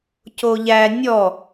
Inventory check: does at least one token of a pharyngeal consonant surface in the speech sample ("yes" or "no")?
no